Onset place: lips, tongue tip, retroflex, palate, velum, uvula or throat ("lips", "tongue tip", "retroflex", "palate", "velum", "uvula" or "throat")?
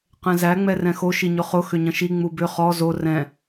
uvula